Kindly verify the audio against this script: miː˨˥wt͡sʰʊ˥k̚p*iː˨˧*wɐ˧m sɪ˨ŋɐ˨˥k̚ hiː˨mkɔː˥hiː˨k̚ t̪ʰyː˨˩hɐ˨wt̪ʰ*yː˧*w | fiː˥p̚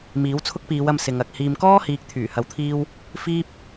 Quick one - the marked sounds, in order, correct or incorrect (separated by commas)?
correct, incorrect